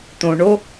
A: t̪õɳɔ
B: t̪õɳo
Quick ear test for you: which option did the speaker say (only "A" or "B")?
B